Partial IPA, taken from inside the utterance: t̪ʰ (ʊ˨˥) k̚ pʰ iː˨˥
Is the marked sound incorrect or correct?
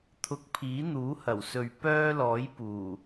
incorrect